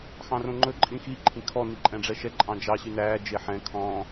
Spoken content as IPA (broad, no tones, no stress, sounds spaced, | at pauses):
x ɑ̃ r õ ŋ͡ǃ ɵ ǃʼ ĩ x i ǃʰ ĩ kʰ ɔ n i ǃʼ ɛ̃ ɖ͡ʐ ɛ ʃ ɛ ǃʼ ɑ̃ d͡ʒ ɑ ɕ y n æː d͡ʒ e ħ ɛ̃ kʰ ɔ̃